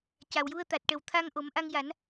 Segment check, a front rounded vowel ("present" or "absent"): absent